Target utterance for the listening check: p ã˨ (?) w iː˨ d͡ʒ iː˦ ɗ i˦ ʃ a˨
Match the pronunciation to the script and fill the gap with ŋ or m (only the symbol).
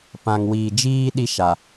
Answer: ŋ